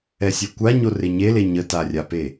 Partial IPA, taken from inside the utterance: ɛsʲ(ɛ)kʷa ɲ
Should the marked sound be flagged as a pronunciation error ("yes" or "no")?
no